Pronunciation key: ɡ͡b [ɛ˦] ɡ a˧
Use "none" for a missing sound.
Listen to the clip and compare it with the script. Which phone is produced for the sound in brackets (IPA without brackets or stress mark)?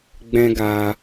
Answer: ɛ̃˦